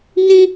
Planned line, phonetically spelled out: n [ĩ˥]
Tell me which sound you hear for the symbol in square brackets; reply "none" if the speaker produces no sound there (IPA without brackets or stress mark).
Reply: ĩ˥